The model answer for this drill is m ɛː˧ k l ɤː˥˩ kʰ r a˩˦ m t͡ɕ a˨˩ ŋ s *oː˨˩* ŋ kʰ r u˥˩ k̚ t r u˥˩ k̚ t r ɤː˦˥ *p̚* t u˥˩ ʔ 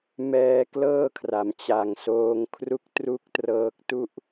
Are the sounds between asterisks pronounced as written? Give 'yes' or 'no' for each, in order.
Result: no, no

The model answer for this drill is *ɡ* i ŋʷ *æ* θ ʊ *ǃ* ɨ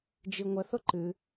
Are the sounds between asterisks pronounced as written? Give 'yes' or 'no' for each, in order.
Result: no, no, yes

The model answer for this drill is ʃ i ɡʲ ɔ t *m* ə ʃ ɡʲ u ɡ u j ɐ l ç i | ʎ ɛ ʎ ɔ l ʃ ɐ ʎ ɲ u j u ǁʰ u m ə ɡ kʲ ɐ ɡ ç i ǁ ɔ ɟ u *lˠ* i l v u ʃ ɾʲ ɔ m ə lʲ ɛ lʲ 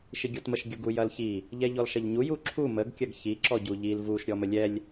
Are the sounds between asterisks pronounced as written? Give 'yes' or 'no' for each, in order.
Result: yes, no

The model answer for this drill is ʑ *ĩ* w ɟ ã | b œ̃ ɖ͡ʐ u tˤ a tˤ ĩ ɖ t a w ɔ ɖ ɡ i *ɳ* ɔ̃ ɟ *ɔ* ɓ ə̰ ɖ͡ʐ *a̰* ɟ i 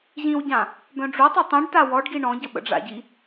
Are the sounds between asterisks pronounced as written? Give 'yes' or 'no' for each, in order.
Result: yes, yes, no, yes

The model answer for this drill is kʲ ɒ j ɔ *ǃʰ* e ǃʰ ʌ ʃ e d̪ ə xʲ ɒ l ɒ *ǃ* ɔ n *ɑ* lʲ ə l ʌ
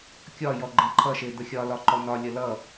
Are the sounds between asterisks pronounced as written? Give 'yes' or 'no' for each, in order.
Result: no, yes, no

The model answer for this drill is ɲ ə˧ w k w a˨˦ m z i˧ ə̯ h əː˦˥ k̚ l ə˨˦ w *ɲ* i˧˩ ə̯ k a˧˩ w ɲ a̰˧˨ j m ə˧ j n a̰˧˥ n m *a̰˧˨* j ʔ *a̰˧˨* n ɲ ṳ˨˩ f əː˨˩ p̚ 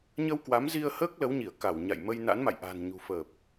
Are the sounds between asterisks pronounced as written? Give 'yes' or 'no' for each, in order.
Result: yes, yes, no

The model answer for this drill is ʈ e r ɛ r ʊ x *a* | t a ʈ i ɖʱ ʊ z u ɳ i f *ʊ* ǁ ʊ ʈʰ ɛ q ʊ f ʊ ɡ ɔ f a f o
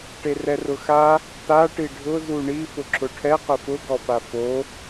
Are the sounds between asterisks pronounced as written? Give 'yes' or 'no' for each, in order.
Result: yes, yes

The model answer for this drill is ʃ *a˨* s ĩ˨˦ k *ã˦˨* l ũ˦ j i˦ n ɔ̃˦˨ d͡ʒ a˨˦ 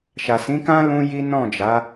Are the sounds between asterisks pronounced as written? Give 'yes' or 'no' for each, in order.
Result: yes, no

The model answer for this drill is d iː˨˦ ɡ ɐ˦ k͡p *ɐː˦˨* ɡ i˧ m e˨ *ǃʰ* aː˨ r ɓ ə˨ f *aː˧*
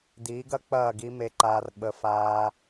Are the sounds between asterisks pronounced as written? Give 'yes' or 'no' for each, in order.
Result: yes, no, yes

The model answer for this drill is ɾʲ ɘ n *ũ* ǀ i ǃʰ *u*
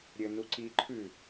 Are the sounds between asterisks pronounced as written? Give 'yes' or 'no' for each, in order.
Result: no, no

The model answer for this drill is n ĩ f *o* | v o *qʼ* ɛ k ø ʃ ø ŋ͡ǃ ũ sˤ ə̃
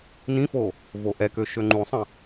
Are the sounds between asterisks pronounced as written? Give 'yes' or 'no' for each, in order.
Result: yes, no

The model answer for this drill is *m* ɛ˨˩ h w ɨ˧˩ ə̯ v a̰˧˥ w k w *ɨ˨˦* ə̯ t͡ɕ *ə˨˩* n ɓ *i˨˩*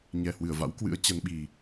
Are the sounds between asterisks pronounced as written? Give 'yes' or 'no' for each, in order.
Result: no, no, no, yes

